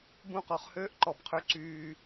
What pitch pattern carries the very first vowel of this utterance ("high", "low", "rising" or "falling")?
falling